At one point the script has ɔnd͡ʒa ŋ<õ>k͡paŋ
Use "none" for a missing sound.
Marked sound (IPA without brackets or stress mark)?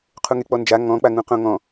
ɔ̃